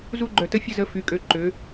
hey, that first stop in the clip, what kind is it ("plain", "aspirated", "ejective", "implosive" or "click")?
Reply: click